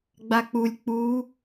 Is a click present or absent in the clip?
absent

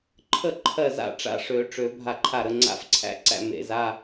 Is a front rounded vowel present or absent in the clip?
present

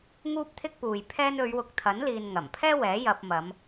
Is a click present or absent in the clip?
absent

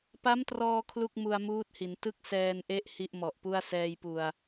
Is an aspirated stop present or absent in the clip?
present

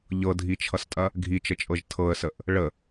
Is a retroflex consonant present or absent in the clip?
present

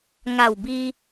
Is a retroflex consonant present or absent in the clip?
absent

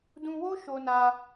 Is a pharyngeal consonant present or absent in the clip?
absent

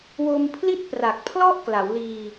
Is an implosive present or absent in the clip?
absent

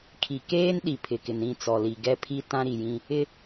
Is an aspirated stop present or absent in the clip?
present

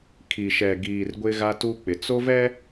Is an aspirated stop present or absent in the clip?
present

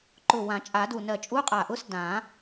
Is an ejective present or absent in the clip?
present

